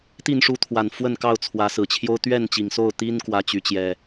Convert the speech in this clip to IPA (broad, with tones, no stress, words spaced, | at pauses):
t̪i˥˨nʂu˥˨ t̪ʰwa˨˩nfwə˥˨nkɑ˥˨ʊ̯t͡sʰwä˨˦ sɹ̩˨˩t͡ɕʰjo˦ʊ̯ t̪ɥɛ˥˨nt͡ɕi˨˩ŋso˥˨ʊ̯t̪i˦n kwä˦t͡ɕy˨˦t͡ɕjɛ˨˩